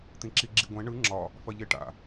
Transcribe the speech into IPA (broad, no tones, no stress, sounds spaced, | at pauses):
t̪ ĩ ǁ i ɡ͡ǁ i ɡʷ ɛ̃ ɳ ɯ ŋ͡ǁ ɒ | f ɐ ʎ e ʈ a̰